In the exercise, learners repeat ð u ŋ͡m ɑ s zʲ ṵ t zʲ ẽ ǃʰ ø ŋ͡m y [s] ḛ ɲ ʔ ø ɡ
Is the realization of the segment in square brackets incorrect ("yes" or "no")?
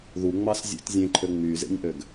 yes